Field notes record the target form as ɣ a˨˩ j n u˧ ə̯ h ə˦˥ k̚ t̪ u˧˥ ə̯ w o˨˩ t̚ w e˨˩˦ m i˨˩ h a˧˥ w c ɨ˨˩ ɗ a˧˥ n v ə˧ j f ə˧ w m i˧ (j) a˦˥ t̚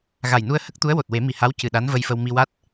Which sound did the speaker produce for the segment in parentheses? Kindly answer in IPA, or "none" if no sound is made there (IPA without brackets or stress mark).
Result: w